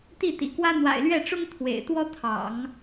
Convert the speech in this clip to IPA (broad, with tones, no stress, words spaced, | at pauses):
t̪i˥˩t̪ḭ˨˩kwä˥ n̪wa̰˨˩ɪ̯lɥɛ˥˩ʈ͡ʂʊ˥ŋ t̪ʰwḛ˨˩ɪ̯t̪wɔ˥t̪ʰɑ̰˨˩˦ŋ